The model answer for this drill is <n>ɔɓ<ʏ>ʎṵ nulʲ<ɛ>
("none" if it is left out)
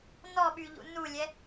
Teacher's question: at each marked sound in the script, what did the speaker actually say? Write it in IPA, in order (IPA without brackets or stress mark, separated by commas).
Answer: n, y, ɛ